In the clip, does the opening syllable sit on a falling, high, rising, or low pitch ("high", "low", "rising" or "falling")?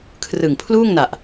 low